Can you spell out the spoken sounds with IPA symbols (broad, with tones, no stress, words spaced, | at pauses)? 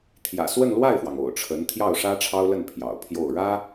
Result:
t̪ʰjä̰˨˩swə˥˧nlwa˥˩ɪ̯fwɑ˩ŋ o̰˨˩ʊ̯ʈ͡ʂʰə˧˥n t̪ʰjɑ˥˩ʊ̯ʂä˥ʈ͡ʂʰɑ˥ʊ̯lə˥˩n pʰjɑ̰˨˩ʊ̯pʰjo˥˩ʊ̯ ɻä˥